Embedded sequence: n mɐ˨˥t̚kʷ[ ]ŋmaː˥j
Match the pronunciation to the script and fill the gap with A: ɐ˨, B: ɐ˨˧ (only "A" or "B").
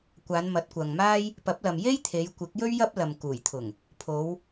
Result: A